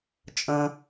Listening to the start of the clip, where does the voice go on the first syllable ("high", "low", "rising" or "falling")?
high